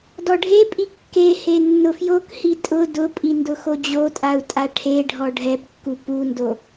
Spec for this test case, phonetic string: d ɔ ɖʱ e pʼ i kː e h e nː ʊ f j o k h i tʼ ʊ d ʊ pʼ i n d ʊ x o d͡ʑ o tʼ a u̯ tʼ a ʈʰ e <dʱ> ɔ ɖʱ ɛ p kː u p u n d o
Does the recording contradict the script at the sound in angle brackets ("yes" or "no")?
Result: yes